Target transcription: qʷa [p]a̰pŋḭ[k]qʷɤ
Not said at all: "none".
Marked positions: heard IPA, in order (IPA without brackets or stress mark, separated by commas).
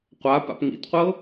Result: p, t